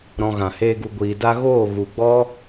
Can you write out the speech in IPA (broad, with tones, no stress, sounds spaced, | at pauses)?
ɾ ɔ̃˧ ɣ ã˨ h eː˦ ɡ u˧ ɡʷ iː˨ d a˦ ɣ oː˦˨ ɣ u˨ ɡ͡b ɔ˦